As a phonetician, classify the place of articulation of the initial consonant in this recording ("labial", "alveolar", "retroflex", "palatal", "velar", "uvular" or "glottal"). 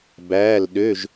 labial